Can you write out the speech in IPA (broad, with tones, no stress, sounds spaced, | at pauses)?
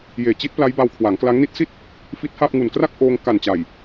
j eː˨˩ t͡ɕ i˦˥ t̚ p l a˦˥ j b a˧ w kʰ w a˩˦ ŋ k l a˦˥ ŋ n i˦˥ t̚ s i˥˩ t̚ | f i˦˥ t̚ h a˥˩ p̚ ŋ u˨˩ n k r a˥˩ k̚ ʔ oː˧ ŋ k a˨˩ n t͡ɕ a˨˩ j